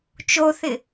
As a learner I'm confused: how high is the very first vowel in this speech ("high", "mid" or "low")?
mid